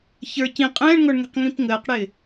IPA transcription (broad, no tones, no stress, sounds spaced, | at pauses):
ç ə˞ c ĩ qʼ ɛ̃ː ɳ ŋ ɔ ɳ ŋ ɛ̤ q ŋ ĩ p ŋ əː q ɽ ɪː